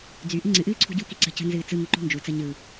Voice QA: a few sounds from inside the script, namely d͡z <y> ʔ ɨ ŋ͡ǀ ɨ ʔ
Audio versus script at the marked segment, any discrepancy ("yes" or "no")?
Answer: no